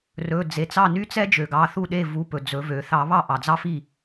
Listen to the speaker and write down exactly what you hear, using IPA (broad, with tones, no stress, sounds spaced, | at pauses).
r ɵ˩˧˩ d͡z e˩ t͡s ɑ˥˩ n y˥ t͡s ɛ˥ d͡ʒ ø˩ ɡ ɑ˩˧˩ θ u˥˩ ɗ e˥˩ v u˩˧˩ p ɵ˩ d͡z ɵ˨˩˦ v ø˨˩˦ θ ɑ˨˩˦ β ɑ˥˩ ʔ ɑ˩ d͡z ɑ˥ f i˥˩